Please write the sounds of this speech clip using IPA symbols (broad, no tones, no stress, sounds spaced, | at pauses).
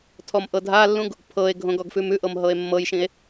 tʰ ɔ m ʔ ɤ dʱ a lː ũ ɡ | pʰ ɤ e̯ ɡʱ õ ɡ ɔ ɡ f ʉ m ʉ ʔ ɤ m ɦ ɤ e̯ mː ɤ j ʃ ĩ e̯